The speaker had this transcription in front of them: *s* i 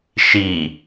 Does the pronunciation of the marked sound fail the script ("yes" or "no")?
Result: yes